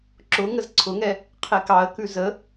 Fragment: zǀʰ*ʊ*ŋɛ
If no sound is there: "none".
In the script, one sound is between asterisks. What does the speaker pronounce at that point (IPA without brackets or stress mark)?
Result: ʊ